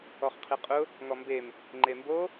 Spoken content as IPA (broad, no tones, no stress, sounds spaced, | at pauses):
ɔ χ qʰ i qʼ ʊ | ŋ ɔ m b e m | ŋ͡ǃ e m b o